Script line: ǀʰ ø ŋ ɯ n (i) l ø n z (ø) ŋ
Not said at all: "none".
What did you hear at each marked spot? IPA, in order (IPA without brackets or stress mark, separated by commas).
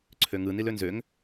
i, ø